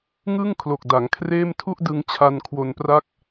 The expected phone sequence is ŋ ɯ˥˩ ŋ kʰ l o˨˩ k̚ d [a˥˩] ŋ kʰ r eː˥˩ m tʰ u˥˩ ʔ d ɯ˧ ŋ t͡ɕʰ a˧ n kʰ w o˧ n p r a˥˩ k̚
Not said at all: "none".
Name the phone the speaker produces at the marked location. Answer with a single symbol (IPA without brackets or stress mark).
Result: a˩˦